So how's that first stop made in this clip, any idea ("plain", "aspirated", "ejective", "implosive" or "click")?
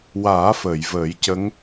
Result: plain